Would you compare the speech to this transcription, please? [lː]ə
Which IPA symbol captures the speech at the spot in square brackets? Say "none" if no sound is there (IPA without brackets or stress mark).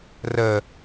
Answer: r